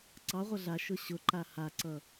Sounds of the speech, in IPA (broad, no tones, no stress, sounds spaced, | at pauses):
ǀ ɑ ʁʷ ə ɮ a ʃ ʊ ɕ ʊ ǃ a h a ǀ ʌ